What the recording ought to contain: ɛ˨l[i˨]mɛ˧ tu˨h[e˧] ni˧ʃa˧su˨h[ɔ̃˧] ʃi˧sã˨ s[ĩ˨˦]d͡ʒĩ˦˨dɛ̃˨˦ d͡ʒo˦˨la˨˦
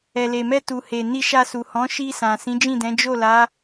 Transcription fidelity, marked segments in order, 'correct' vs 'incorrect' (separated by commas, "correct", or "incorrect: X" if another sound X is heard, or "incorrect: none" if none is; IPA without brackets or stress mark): incorrect: e˨, incorrect: e˨, incorrect: ɔ̃˨˦, correct